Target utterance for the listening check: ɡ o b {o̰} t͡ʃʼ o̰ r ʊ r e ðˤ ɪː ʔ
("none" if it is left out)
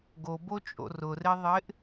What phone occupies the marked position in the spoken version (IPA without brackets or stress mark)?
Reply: o